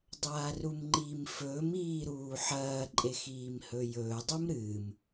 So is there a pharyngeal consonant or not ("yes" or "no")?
yes